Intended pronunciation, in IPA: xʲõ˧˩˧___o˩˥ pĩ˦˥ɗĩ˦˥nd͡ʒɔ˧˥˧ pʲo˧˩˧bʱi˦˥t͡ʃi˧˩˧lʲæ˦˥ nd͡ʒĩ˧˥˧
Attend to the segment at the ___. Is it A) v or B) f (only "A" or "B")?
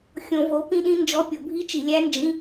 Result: A